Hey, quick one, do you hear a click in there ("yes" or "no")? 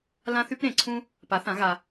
yes